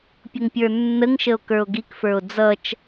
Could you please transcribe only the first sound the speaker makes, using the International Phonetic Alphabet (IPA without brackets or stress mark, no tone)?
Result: pʲ